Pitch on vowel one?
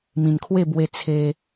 low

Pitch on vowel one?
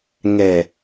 low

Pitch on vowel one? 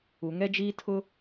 low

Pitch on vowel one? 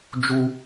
high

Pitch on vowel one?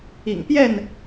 low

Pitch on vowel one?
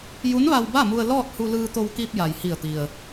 rising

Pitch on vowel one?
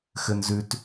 high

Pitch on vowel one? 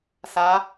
rising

